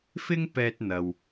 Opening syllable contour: high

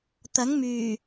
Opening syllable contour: rising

